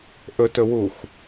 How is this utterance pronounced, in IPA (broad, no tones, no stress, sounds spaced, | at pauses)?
ʔ ɵ t ɵ w u x